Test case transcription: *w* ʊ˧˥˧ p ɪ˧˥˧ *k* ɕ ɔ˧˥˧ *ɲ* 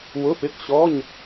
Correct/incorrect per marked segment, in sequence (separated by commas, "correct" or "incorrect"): correct, correct, correct